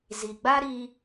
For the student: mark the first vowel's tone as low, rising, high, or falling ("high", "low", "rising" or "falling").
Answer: low